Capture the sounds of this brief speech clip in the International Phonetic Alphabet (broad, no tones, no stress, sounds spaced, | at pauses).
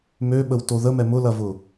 m ø ɓ ə w t o ð ə m ɛ m ʊ l ɐ v ʊ